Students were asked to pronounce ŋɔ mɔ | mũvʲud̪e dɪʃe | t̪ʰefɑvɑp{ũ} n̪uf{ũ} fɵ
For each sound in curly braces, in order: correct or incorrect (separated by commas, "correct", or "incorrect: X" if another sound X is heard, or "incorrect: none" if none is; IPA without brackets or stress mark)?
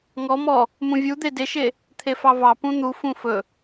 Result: correct, correct